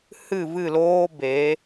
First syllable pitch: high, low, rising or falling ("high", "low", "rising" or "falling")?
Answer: falling